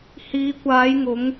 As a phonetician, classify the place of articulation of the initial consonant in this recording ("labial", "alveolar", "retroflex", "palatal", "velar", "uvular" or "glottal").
glottal